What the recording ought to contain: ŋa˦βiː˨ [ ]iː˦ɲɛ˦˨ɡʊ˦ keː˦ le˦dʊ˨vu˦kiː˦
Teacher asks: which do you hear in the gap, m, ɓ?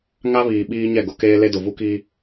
ɓ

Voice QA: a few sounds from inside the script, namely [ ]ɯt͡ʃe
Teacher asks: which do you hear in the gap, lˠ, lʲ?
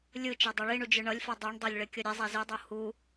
lʲ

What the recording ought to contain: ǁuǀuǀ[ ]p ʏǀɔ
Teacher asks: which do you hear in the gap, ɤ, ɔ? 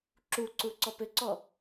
ɔ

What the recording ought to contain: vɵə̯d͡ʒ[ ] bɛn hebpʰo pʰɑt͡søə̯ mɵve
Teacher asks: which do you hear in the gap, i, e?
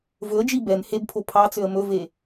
i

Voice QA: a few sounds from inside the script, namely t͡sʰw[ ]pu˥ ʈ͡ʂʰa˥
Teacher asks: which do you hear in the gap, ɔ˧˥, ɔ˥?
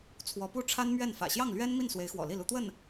ɔ˧˥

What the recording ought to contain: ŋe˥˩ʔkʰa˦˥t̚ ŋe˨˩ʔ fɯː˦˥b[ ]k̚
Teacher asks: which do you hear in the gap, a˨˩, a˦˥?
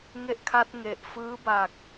a˨˩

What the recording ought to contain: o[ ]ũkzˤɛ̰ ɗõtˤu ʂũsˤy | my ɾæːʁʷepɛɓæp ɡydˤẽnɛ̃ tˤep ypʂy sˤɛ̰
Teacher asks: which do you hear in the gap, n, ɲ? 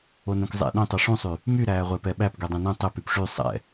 n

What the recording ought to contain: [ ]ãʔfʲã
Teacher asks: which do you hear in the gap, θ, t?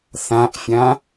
θ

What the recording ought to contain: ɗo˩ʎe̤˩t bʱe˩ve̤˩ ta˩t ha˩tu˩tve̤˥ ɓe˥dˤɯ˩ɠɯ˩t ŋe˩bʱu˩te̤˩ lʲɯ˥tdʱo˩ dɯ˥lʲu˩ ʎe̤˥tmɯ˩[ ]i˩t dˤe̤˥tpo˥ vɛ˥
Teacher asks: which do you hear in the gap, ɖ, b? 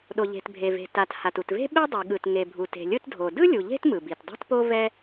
b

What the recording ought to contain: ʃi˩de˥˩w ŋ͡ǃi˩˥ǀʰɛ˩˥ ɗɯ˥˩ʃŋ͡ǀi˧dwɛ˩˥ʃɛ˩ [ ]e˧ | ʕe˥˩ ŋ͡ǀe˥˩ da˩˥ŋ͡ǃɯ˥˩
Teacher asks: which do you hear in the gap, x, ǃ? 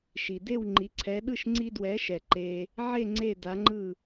ǃ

